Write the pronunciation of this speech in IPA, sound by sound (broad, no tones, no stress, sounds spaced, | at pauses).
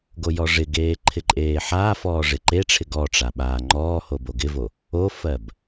ɡ o j ɔ ʐ ɪ ɡ eː ǃʰ ɪ ǃʼ eː ħ aː f ɔː ʐ ɪ ǃ e ʈ͡ʂʰ ɪ ɡ ɔ ʈ͡ʂ a ɓ aː ŋ͡ǃ ɔː h o b o ɡ ɪ v o | o f ɜ b